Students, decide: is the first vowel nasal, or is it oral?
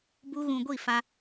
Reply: oral